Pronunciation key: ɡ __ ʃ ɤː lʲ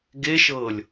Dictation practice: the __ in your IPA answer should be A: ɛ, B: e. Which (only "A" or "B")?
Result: B